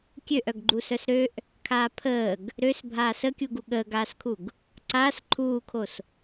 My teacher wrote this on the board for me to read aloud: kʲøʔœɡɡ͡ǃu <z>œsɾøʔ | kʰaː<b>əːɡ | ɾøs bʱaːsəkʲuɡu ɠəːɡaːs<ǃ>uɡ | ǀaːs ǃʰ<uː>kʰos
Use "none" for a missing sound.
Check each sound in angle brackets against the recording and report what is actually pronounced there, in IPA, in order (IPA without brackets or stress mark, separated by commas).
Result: s, pʰ, kʰ, uː